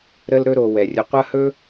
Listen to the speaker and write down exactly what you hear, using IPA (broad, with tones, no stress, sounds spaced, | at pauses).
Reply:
ɾ ə˦ l ɾ ɵ˦ ɾ o˨ w ɛ˩ rʲ ə˨ qʷ ɐ˥ h ɵ˥